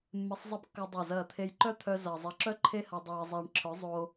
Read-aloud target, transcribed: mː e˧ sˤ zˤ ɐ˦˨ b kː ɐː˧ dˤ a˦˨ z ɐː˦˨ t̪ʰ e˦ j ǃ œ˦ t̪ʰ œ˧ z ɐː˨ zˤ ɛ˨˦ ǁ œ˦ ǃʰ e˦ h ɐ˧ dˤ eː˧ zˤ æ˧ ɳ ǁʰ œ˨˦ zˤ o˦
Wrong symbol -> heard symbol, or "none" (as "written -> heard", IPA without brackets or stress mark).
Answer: none